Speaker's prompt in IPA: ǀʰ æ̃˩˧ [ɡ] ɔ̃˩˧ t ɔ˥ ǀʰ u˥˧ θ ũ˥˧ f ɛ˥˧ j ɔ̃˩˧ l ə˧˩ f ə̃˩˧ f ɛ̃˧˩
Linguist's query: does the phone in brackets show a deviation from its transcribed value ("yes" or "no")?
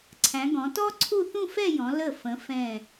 no